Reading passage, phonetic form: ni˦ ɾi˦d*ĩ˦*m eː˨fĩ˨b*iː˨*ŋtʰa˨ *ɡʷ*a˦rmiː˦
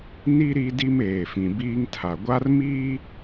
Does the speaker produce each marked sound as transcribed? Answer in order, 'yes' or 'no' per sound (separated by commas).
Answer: no, no, yes